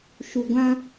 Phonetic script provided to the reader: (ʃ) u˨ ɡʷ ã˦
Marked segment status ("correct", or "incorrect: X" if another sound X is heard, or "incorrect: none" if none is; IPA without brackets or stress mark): correct